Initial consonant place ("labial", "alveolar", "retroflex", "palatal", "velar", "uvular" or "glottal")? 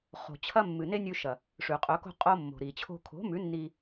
uvular